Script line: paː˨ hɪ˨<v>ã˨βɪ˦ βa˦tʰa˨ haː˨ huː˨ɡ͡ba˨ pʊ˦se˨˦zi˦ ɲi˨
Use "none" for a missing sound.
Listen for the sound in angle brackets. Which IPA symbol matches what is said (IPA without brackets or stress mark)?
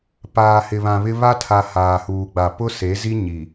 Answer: β